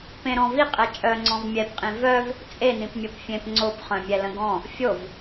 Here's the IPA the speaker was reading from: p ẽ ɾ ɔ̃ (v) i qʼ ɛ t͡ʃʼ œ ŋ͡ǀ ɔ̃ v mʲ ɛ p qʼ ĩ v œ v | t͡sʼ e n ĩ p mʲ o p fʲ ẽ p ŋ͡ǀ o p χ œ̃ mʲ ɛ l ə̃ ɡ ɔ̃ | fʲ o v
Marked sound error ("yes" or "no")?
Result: no